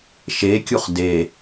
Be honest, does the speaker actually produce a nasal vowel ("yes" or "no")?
no